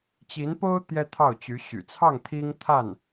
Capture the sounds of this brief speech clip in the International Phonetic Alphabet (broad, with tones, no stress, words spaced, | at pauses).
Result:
t͡ɕi˧˥npo˥ʊ̯ t̪jɛ˥t̪ʰɑ˥˩ʊ̯t͡ɕy˧˥ ɕy̰˨˩t͡sʰɑ˥˩ŋ t̪ʰi˥ŋt̪ʰa˥˩n